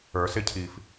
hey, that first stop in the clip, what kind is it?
aspirated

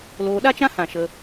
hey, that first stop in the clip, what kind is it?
implosive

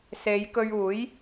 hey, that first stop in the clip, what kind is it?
plain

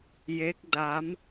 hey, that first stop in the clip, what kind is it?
plain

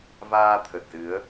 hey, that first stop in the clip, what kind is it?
aspirated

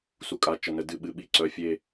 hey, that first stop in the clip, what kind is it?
ejective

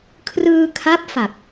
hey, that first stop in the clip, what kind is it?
aspirated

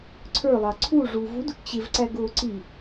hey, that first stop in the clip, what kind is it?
click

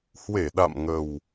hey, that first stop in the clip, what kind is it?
implosive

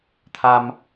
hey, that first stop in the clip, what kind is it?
aspirated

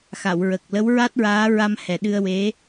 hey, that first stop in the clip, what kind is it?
plain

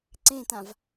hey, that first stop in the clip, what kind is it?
click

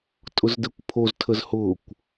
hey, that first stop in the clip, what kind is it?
ejective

